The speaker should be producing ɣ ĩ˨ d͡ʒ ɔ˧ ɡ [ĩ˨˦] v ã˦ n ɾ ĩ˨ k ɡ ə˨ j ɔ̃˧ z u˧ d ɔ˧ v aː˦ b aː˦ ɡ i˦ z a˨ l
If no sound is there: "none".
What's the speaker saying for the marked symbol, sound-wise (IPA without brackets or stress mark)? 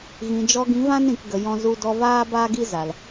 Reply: ĩ˨˦